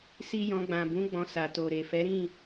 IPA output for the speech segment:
s i˦ j ɔ̃˧ ɡ͡b ã˨ b ũ˨˦ ɡ͡b ɔ̃˧ s a˨ t o˨ ɾ e˨ f ɛ˨˦ ɾ ĩ˦˨

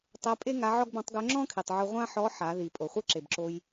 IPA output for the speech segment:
tˤ ɜ˧˥ pʼ e˥ ŋ a˧˥ ʕ ɔ˥ ɡ b ɔ̃˧˥ tˤ ɡ œ˧˥ ŋ͡ǁ ɔ̃˥ kʰ i˩ tˤ ʕ o˧ ʁʷ ã˥ ħ ɔ˧˥ ħ a˩˧ ð i˩ pʼ o˩ χʷ ɘ˥ ǁ e˩ b ǁ o˧ j

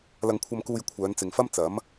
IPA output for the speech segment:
l ɐ˨ ŋ kʷʰ ɐ˨ m k uː˨ j kʷʰ œː˨˧ n t͡s ɪ˨ ŋ f ɐ˥ m t͡s ɐ˨˥ m

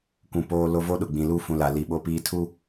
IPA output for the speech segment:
kʷ ũ˨ p oː˦ l o˦ v o˦ ɗ ʊ˨ ɡ͡b ĩ˨ l u˦˨ f ũ˨ l a˨ l i˨ ɓ o˦ p iː˦ tʰ u˦

